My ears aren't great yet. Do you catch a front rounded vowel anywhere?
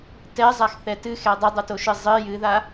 no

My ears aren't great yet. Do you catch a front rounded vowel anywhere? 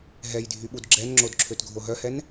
yes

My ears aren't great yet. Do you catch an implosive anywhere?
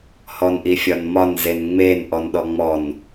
yes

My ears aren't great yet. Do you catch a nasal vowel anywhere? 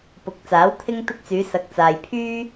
no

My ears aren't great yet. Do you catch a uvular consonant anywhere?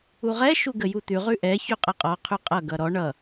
yes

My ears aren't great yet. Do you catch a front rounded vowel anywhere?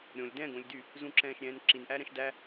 yes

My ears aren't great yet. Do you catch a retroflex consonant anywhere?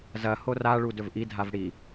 yes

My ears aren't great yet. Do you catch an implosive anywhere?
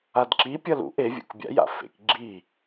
no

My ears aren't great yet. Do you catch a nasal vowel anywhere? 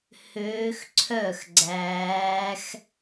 no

